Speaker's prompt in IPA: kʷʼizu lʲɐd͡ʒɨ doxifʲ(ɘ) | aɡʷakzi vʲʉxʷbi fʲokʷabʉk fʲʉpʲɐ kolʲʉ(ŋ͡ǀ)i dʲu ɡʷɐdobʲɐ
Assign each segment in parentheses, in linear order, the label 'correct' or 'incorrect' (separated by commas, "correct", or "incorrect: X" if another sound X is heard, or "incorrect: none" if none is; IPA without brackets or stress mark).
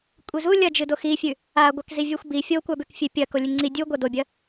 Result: incorrect: ʉ, correct